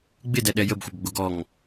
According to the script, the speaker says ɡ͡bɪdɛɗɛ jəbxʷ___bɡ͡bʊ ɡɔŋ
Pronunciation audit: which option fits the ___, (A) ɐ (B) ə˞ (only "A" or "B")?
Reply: A